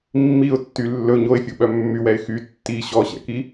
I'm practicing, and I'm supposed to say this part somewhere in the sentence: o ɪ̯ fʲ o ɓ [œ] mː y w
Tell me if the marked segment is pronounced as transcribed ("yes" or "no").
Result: yes